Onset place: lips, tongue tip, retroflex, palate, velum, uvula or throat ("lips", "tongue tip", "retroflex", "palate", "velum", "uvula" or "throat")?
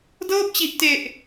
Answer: tongue tip